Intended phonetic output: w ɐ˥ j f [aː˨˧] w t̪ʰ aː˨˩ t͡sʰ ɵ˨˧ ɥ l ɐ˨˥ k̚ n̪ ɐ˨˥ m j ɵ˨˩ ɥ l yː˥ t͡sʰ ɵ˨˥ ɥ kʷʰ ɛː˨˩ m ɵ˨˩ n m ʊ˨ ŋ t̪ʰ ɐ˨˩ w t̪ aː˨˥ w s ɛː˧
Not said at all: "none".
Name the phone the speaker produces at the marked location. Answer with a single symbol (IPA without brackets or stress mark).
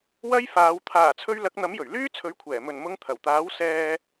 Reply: aː˨˧